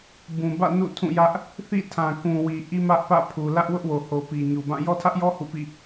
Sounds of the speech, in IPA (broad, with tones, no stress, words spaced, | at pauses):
bũ˨bä̰˦˨ nṵ˦˨ tʰũ˦˨jä˦ʔ | θḭ˦˨ tʰã˨kũ˨wi˨ ʔi˦mä˦ʔ pä̰˦˨pʰu˨ lä˦ʔwʊ˦ʔwo˨ho˨ pi˨ɲu˨bã˦˨ jɔ˦tʰä˦ʔjɔ˦ hṵ˦˨pḭ˦˨